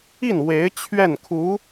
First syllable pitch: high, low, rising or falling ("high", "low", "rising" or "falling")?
falling